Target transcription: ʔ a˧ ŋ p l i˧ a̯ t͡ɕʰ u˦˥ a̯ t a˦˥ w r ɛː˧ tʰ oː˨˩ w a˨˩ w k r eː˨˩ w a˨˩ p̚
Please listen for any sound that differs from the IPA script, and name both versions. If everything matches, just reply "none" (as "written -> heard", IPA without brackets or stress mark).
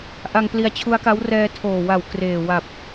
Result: t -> k